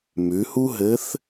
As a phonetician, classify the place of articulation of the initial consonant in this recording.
labial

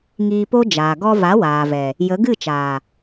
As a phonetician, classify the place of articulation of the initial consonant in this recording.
velar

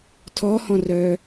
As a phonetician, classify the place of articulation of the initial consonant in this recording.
alveolar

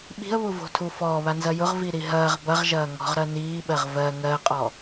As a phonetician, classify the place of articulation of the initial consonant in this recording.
labial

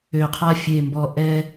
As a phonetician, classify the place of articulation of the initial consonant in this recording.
uvular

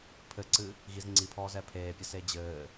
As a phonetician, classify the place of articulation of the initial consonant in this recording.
labial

